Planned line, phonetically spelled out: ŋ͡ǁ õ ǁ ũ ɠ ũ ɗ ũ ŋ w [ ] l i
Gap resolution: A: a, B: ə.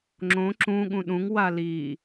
A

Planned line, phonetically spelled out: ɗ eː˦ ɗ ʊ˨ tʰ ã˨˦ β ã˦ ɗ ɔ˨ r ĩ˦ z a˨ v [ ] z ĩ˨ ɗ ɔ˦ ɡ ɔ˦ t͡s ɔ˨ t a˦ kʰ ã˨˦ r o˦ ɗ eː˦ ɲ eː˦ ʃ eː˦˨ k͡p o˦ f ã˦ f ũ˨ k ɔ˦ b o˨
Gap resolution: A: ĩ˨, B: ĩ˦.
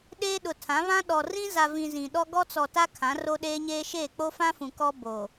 A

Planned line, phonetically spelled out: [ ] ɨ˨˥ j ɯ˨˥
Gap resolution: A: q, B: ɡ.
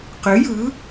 A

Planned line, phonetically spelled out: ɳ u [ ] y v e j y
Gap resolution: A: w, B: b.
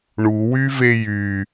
A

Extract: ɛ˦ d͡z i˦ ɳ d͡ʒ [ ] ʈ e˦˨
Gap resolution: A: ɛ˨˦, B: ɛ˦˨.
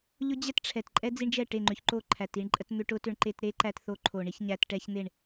B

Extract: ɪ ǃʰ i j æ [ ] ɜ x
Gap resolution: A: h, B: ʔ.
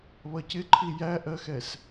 B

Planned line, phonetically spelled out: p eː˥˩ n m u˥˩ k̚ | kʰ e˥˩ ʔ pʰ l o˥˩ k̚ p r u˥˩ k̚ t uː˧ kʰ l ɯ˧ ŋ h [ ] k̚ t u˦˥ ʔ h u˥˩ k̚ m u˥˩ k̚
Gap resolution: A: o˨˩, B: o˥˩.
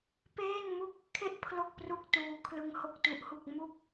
B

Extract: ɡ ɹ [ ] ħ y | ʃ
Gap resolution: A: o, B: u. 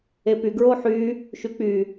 A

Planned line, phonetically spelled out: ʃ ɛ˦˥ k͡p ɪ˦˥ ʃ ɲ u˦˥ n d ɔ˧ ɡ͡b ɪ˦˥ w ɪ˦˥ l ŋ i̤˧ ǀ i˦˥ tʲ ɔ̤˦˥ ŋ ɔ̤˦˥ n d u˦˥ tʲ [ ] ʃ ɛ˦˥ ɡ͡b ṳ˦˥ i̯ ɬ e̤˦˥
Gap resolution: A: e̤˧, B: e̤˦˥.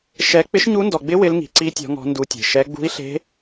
A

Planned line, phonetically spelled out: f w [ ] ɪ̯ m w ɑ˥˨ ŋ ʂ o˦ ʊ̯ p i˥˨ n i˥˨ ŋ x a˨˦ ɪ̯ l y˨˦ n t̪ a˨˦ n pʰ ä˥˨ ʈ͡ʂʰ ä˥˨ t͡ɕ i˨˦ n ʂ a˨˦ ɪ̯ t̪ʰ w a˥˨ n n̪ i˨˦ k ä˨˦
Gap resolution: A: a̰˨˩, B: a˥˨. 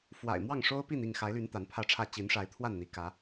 A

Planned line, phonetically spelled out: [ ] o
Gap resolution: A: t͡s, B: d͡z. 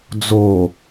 B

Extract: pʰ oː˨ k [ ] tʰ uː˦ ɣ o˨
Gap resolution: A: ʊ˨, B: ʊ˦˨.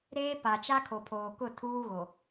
B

